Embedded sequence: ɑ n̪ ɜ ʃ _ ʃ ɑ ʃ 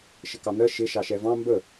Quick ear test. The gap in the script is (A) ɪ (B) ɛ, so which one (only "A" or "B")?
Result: A